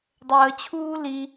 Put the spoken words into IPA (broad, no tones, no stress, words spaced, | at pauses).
dˤəːt͡ɕʰuː li